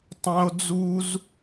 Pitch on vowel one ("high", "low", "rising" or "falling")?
high